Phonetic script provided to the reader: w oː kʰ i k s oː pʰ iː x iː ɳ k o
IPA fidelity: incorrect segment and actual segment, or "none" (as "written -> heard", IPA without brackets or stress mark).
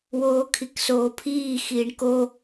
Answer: none